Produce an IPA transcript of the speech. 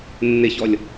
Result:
nː ɪ ç ɔ lʲ

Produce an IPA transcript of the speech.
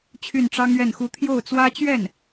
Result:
t͡ɕʰ y˥˩ n ʈ͡ʂ ɑ˥ ŋ ɥ ɛ˥˩ n x u˥ t̪ʰ j o˥˩ ʊ̯ t͡s w ä˥ t͡ɕ ɥ ɛ˥˩ n

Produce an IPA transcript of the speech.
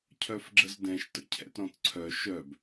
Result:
cʰ œ f ɡ͡ǁ ə z d ɛ̃ ʃ t ə̰ cʰ ɛ̰ t ɾ ɔ̃ t ǀʰ œ ʃ œ b

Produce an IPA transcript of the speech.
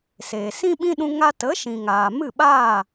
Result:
s eː˨ s ĩ˦ ɓ ĩ˦ ɗ ũ˧ ŋ a˧ t ə˨˦ ʃ ĩ˨ ŋ aː˨ m ɨ˦˨ ɓ aː˦˨

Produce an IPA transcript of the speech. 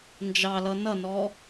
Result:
n d͡ʒ ɑ l ʌ n ʌ n ɔ

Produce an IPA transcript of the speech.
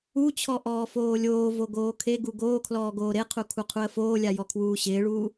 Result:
u t͡ɕʰ ɔ ʔ ɔː f oː lʲ oː v o ɡ oː kʰ e ɡ u ɡ oː kʰ l ɔː ɡ oː ɾ e qʰ u kʰ u qʰ u ə̯ f oː lʲ a j ɔ kʰ w uː ɕ ɪː ɭ uː

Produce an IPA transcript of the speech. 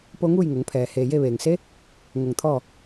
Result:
p o˧ ŋ uː˥˨ j ŋ o˩˧ ŋ pʰ ɛː˩ h eː˩ j e˥˨ ʋ eː˩ ŋ s e˧˥ | ŋ o˧˩ ŋ t̪ʰ ɔː˥˨

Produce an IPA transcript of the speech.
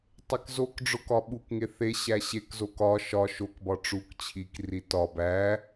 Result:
tˤ e k z o k ɖ͡ʐ o k ɒ ɓ u k ŋ e θ e ɕ æ ɕ e k z o k ɒ ʃ ɒ ʃ o k b ɒ ʈ͡ʂ u k t͡ɕʰ i k r i t ɒ b æ

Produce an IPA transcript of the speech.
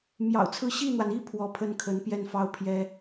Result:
m j ɑ̰˨˩ ʊ̯ t͡sʰ ɹ̩˥˧ ɕ i˥˩ n̪ w a˩ n i˥ pʰ w ɔ˧˥ pʰ ə˥ n kʰ ə˧˥ n p j ɛ˥˧ n f ɑ˥˩ ʊ̯ pʰ j ɛ˥

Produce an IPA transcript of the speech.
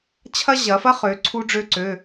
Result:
t͡ɕʰ ɐ˥ ʑ ɐ˨˦ f ɐ˥ χ ø˨˦ ǀʰ u˥ ɖ͡ʐ ø˥ ǀ ø˧˥˧

